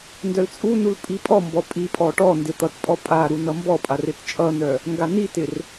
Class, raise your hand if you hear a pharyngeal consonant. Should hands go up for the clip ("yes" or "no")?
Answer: no